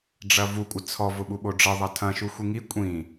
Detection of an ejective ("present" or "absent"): present